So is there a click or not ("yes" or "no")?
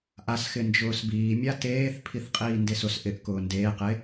no